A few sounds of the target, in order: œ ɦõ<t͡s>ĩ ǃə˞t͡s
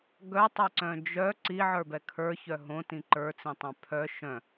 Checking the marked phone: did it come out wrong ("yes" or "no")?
yes